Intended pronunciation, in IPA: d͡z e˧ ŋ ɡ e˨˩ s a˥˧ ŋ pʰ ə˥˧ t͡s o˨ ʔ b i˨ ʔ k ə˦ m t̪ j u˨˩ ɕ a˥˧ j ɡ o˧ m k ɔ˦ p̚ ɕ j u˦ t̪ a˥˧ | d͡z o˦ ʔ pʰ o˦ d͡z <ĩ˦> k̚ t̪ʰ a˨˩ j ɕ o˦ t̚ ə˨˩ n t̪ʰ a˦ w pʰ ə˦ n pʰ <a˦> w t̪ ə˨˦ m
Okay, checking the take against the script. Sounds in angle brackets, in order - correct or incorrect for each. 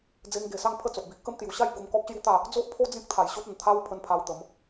correct, correct

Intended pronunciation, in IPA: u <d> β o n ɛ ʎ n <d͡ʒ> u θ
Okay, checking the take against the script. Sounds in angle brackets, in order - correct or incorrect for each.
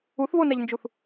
incorrect, correct

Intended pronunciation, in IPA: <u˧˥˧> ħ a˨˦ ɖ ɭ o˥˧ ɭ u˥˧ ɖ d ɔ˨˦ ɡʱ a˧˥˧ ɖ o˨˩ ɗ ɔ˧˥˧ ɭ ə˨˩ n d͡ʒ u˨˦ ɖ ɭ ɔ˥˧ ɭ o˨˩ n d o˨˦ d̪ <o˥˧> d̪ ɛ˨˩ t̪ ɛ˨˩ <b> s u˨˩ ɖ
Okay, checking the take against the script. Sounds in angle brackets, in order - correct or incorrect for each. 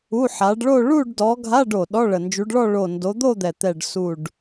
correct, correct, incorrect

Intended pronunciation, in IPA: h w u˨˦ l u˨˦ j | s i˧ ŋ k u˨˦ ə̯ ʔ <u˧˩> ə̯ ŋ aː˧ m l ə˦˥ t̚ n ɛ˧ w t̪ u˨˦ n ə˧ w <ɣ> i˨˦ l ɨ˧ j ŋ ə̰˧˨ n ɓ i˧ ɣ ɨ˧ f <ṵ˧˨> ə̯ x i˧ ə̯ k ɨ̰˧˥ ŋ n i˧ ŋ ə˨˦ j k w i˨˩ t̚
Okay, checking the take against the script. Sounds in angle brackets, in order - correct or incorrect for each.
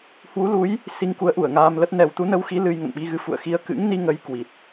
correct, incorrect, correct

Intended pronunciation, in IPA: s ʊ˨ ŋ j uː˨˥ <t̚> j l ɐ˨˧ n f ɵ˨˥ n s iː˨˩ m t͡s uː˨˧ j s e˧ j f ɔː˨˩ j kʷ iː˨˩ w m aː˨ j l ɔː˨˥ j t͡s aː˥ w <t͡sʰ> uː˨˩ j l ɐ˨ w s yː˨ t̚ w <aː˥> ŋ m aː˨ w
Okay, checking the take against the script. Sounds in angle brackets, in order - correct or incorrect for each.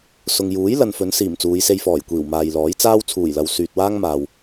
incorrect, correct, correct

